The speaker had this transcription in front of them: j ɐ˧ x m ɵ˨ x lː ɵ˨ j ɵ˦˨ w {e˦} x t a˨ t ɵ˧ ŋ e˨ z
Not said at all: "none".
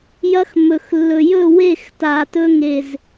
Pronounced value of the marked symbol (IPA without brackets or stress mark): e˦˨